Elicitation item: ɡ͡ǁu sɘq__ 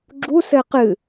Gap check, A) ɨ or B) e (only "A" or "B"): A